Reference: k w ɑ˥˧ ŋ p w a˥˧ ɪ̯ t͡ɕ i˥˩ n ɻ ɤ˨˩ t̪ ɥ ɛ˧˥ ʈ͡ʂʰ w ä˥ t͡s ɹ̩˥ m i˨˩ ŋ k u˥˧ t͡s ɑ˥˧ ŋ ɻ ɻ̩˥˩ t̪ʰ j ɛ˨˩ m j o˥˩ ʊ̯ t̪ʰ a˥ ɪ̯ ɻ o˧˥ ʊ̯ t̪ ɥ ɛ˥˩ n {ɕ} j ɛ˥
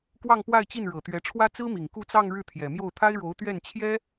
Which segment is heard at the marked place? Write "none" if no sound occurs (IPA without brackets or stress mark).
t͡ɕʰ